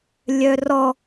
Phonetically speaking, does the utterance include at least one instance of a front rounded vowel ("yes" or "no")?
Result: yes